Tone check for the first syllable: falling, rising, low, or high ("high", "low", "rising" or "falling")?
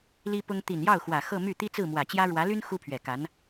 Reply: high